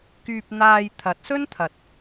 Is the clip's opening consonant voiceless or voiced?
voiceless